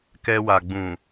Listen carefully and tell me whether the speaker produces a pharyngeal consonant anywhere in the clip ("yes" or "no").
no